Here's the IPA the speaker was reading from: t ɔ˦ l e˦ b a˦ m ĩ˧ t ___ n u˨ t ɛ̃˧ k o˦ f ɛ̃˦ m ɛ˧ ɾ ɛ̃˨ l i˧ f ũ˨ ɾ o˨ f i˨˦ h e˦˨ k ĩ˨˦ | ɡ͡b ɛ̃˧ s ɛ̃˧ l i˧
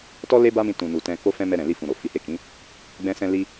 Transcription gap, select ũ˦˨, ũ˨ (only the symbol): ũ˨